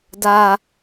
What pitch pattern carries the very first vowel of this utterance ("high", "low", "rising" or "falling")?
low